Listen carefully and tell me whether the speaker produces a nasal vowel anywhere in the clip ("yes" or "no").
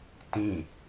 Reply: yes